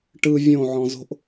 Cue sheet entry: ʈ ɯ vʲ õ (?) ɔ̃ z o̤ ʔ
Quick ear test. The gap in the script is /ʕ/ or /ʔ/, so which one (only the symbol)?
ʕ